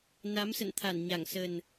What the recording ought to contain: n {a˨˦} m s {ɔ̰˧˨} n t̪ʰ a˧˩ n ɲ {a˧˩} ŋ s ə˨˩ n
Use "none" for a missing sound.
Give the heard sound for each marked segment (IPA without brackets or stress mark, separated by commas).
a˨˦, ə̰˧˨, a˧˩